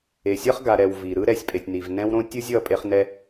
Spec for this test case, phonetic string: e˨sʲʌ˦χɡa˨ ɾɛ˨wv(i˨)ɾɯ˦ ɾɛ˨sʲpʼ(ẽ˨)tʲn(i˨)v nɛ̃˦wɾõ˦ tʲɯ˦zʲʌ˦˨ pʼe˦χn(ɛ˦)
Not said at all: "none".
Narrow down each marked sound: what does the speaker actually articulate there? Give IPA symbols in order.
i˨, e˨, i˨, ɛ˦

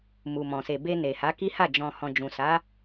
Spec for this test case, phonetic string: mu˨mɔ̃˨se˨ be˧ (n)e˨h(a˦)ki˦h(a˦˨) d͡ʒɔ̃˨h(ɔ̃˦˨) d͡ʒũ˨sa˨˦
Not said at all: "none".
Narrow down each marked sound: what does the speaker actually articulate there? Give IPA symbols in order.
n, a˨˦, a˦˨, ɔ̃˨

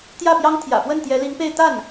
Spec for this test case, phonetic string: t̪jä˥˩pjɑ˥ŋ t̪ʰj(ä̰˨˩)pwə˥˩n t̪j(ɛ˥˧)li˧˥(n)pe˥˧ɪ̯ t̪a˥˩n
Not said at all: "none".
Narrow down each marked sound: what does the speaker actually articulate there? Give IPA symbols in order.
ä̰˨˩, ɛ˧˥, ŋ

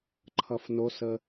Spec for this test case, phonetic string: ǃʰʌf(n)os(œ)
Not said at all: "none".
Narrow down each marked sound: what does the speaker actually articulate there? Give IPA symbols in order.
n, ə

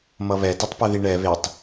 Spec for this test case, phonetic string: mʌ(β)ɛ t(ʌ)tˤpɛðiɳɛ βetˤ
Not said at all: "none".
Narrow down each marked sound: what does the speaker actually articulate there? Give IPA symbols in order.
β, ʌ

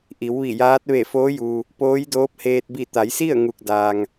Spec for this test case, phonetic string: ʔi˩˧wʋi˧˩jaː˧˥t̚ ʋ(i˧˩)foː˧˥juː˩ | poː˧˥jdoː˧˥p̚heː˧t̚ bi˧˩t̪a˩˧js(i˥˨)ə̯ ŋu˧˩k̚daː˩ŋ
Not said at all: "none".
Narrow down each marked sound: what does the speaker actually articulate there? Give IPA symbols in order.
e˧˩, i˥˨

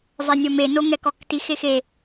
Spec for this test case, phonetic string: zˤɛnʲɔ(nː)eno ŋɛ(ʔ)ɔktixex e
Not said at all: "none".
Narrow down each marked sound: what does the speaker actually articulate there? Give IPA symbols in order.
m, k

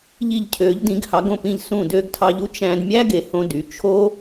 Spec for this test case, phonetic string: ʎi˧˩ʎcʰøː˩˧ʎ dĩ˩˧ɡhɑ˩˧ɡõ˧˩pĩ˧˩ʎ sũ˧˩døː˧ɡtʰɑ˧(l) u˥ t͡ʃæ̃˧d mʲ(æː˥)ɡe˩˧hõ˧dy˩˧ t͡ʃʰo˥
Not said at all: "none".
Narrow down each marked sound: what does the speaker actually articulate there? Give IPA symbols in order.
ʎ, æ˥

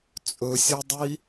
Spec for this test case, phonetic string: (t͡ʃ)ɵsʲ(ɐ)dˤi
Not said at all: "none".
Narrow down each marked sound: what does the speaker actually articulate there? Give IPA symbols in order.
t͡sʼ, ɐ

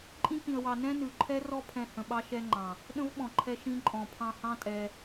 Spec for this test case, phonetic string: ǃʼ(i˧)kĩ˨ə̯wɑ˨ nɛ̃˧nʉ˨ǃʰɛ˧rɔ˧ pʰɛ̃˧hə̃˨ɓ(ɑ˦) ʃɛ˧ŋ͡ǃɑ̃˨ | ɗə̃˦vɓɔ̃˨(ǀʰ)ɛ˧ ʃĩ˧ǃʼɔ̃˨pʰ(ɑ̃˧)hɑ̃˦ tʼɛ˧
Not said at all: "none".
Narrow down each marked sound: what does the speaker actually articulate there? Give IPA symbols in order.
ĩ˧, ɑ˦, ǃʰ, ɑ̃˧

